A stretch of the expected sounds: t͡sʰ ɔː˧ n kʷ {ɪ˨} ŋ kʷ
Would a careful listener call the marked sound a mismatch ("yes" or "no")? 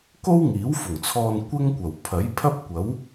yes